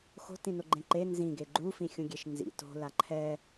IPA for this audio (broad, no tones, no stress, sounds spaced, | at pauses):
x o̤ t ĩ n o ɡ͡ǃ ẽ ǃ e n z ĩ ɡ e ɡ͡ǃ u f ĩ xʲ ũ ɡʲ e ʃ n z ḭ t o̤ l a ǃʰ ɛ